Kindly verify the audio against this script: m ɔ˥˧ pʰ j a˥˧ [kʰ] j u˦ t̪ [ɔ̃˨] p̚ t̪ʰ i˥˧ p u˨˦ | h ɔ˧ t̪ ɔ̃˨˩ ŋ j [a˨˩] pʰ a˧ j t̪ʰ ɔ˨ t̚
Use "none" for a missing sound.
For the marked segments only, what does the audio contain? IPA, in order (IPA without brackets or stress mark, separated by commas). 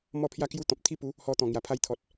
k, ɔ̃˨, a˨˩